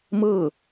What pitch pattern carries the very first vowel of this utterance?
falling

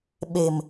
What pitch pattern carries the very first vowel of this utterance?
low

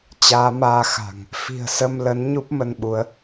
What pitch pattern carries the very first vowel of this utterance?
rising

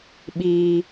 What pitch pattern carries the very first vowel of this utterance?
low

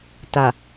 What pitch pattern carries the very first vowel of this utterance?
low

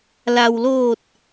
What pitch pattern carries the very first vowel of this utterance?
low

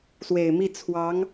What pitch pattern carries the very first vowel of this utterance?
low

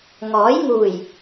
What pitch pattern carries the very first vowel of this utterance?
rising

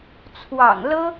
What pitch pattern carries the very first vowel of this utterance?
low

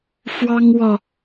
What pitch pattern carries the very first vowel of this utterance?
high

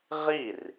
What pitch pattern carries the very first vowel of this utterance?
falling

